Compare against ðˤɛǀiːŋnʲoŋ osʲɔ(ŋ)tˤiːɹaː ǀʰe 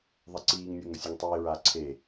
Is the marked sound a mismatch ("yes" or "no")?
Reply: no